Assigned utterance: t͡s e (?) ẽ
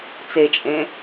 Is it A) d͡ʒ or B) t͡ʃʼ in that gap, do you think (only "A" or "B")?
B